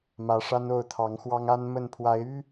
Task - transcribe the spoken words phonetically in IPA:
mä˨˦ʂa˦n o˥˨ʊ̯t̪ʰɑ˨˦ŋxwɑ˦ŋ a˦nmə˥˨n pʰwa˨˦ɪ̯y˦

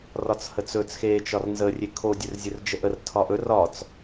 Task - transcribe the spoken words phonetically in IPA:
rɒt͡shət͡sɵt͡s xe t͡ʃɒrnzə rʲekʰo dʲɵrzʲɵrd͡ʒəʔər tʰɒʔɵ rɒt͡s

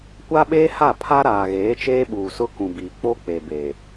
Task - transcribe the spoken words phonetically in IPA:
kʷa˦ɓeː˦ha˦˨ pʰa˦ɾaː˨ɣeː˨˦t͡ʃeː˦ ɓuː˨sʊ˦kũ˨biː˨ k͡po˦k͡pe˨ be˨

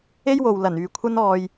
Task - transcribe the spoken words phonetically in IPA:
e˥jwo˨wlɐ˨˩nyː˨ kʷʰɐ˧nɔː˨j

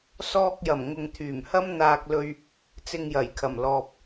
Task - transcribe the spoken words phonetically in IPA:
sɔː˧k̚jɐ˨˩m ŋʊ˨ŋt̪ʰyː˨˩mhɐ˥m n̪aː˧k̚lɵ˧ɥ | t͡sɪ˧ŋjɐ˨˩jkʰɐ˨˩mlɔː˨p̚

